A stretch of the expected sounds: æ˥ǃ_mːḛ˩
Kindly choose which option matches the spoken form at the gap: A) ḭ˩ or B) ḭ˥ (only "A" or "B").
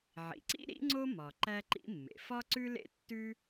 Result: B